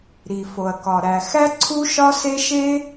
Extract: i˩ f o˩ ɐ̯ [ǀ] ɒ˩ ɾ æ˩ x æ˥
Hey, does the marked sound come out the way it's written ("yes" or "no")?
no